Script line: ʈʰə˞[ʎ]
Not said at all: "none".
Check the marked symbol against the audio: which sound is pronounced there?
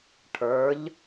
ʎ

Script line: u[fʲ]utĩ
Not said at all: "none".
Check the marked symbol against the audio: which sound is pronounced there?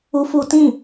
f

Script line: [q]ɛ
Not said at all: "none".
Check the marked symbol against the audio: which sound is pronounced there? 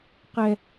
q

